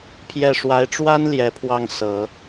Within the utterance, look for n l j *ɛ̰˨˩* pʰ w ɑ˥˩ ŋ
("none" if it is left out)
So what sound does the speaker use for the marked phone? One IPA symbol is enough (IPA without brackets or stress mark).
ɛ˧˥